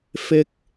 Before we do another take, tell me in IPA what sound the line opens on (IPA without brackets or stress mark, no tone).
f